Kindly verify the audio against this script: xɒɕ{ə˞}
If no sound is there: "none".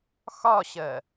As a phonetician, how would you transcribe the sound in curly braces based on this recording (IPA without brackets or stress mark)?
ɜ